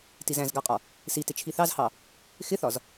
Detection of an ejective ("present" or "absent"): present